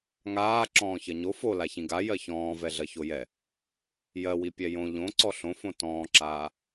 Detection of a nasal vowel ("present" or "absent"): present